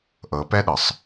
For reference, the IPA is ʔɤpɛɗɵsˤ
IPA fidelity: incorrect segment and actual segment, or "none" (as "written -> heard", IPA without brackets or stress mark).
ɵ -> ɤ